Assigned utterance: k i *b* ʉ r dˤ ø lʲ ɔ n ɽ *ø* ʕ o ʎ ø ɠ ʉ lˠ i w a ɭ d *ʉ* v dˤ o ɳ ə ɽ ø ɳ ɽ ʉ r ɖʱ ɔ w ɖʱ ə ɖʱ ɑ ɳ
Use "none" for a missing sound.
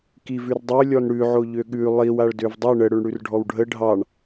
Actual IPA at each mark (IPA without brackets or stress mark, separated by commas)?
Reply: v, ʉ, ø